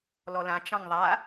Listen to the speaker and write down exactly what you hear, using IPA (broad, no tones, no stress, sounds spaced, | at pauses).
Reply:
l ɔ l ã t͡ʃ ɑ̃ ŋ ðˤ a